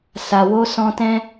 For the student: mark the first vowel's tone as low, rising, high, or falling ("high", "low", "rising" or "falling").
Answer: low